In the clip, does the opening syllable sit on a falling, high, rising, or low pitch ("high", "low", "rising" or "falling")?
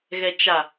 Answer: low